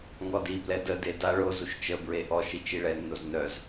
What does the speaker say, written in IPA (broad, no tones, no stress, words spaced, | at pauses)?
ŋɔdiblɛ dəde da ɭozuʃ t͡ʃəbɹe ʔɔʃ it͡ʃiɭɛnːoz nœz